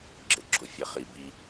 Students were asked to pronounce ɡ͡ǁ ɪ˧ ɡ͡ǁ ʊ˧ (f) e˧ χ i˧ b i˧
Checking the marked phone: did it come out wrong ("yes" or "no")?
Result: yes